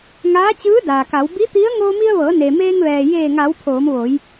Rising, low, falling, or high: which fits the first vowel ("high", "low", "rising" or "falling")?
rising